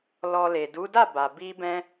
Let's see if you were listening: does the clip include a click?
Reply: no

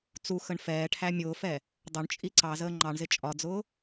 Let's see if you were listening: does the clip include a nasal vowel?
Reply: no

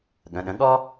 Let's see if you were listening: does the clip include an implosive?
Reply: yes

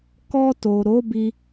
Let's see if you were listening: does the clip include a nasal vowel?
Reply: no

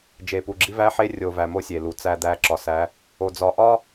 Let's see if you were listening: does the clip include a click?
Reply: yes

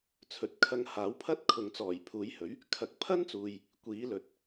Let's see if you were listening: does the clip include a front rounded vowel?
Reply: no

